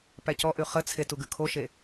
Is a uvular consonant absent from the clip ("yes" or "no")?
no